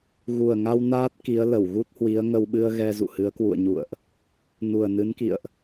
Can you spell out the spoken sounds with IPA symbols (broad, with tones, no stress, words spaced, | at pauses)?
ɣu˨˩ə̯ŋa˧w naː˦˥t̚ki˨˦ə̯ lə˧˩wɣu˦˥t̚hwi˨˦ə̯ ŋə˧wɓɨ˧ə̯ ɣɛ˧zṵ˧˨hɨ˨˦ə̯ kwṵ˧˨ə̯ɲṵ˧˨ə̯ʔ | nu˨˩ə̯nɨ˨˦nkḭ˧˨ə̯ʔ